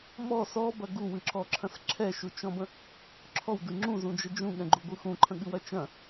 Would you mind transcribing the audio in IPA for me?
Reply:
m ɔ s ɔ b ɐ ɡ u w ɨ ǁ ɔ ǁʰ ɐ̃ s ǁʰ ɛ ʃ u t͡ʃ ɔ̃ b ə̃ | ǁʰ ɔ w d ɨ ŋ͡ǁ ũ z ũ d͡ʒ ə d͡ʒ ũ ɠ ɛ̃ ɡ͡ǃ u ɡʷ ɯ x ũ ǃʰ ə̃ ɠ ɨ w ɐ t͡ʃ ɐ̃

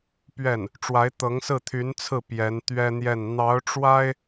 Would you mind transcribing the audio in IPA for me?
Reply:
p ɥ ɛ˥˩ n | ʈ͡ʂ w a˧˥ ɪ̯ t̪ ɤ˧˥ ŋ s ɹ̩˥˩ t̪ʰ y˧˥ n t͡sʰ ɹ̩˥˩ p j ɛ˧˥ n t̪ ɥ ɛ˥ n̪ j ɛ˥˩ n n̪ ɑ˧˥ ʊ̯ ʈ͡ʂ w a˥ ɪ̯

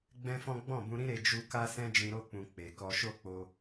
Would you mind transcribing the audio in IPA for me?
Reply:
ɡ͡b ɛ̃˦ f ɔ̃˦ ɡ͡b ɔ̃˦˨ b ũ˧ ɾ ĩ˦ ɾ e˧ d͡ʒ u˧ k a˦ s ɛ̃˦ d͡ʒ ĩ˧ ɾ o˧ k͡p ũ˨ k͡p e˨ k ɔ˧ ʃ o˦ k͡p o˧

